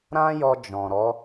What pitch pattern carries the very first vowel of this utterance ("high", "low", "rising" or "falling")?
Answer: high